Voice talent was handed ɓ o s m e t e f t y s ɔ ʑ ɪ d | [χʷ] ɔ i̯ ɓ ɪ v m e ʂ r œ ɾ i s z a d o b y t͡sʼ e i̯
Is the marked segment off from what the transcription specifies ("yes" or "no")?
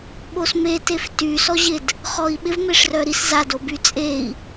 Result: yes